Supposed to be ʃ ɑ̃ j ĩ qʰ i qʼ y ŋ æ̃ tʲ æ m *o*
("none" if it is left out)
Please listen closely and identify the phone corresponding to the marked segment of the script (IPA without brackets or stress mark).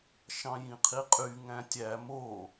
o